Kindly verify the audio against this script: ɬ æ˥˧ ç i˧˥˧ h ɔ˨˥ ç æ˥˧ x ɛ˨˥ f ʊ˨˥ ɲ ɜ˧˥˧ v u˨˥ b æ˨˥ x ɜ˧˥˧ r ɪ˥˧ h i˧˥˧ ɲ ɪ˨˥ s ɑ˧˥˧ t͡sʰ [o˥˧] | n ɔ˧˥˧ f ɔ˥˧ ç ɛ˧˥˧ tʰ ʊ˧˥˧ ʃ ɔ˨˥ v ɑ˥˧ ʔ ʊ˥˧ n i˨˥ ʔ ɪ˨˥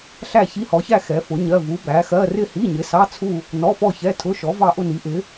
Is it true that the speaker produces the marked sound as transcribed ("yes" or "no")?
no